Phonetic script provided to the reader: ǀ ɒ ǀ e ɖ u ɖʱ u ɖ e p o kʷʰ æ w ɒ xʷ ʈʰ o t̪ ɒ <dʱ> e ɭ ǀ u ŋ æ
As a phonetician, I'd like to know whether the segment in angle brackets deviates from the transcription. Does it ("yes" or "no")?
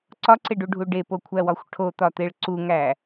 yes